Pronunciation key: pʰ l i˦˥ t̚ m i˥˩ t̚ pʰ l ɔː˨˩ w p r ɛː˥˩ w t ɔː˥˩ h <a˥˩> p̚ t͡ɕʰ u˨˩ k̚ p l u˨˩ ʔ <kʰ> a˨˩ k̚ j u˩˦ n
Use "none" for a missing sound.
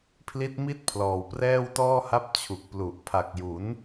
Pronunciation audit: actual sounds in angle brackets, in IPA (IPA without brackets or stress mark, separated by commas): a˥˩, pʰ